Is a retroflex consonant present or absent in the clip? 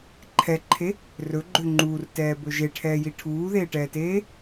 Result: present